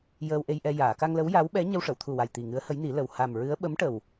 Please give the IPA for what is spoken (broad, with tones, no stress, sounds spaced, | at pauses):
j əː˧ w ʔ e˧ j ʔ ɛ˧ j aː˨˩˨ k a˧ ŋ l ə˧˥ w j a˧˥ w ɓ ɛ˧˥ ɲ ə˧ w ʂ ə˨˩˨ w t̪ʰ u˨˩ w a˨˩ j t̪ i˨˩ ŋ ɨ˧˥ ə̯ h ə˧˥ j n i˨˩˦ l ə˨˩ w h a˨˩ m ɹ ɨ˧˥ ə̯ ɓ ə˧˥ m ʈ ə˨˩ w